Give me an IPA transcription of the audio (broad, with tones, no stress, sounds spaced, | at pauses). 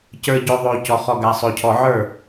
c ə˞˨ ɟ o˨ ðˤ oː˨ c ɔ˨ χ ɔ˨ ɡ a˨ sˤ o˨ cʰ ɔ˨ ʕ ə˞˦˨